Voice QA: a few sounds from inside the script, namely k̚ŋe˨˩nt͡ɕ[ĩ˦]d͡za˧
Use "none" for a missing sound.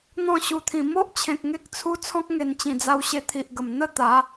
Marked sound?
ĩ˨˩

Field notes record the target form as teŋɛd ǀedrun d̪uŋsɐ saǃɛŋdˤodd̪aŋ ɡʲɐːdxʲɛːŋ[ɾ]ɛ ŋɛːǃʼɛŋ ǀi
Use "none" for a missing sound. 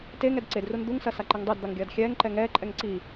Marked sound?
ǃ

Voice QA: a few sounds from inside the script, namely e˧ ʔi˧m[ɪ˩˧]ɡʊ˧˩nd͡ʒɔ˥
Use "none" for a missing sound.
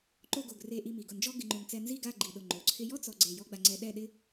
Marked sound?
i˩˧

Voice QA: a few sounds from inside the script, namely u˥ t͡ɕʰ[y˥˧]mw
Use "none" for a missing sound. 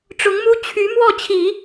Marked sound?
y˧˥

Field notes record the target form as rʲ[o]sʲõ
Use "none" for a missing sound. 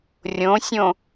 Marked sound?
õ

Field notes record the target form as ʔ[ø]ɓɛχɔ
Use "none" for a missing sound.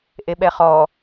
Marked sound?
e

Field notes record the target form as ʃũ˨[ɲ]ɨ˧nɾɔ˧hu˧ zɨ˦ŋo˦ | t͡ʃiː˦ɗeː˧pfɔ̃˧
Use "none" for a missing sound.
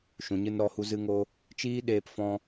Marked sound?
ɲ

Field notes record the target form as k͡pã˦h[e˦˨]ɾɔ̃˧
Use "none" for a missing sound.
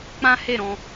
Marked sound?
e˦˨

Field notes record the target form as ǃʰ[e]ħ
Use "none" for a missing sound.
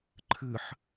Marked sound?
ɨ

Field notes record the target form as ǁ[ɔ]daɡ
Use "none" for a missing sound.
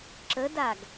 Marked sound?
ə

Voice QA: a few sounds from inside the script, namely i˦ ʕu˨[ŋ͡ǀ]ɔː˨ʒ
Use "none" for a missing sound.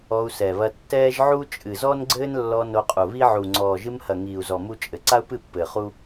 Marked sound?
ŋ͡ǀ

